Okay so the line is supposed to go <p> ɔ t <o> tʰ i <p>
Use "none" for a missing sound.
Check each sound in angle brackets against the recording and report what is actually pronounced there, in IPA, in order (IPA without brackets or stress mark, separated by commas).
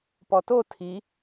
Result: p, o, none